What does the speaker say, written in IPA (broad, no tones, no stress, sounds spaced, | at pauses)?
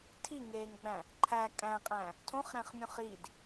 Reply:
tʰ i ŋ eː ŋ ɡ͡b æ̃ | ǃʰ æ kʼ æ̃ qʼ æ̃ | tʰ õ χ ɾ æ̃ χ mʲ ũ χ i d